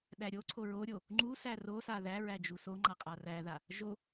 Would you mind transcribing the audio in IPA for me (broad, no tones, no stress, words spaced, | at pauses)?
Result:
ɗæɾʲoǀʰo ɹoɾʲo | ŋ͡ǃusæ rosa ðæɹæ d͡ʒusoŋ͡ǃa qʼaræða | ʒo